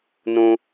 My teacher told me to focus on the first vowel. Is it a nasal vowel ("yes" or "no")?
yes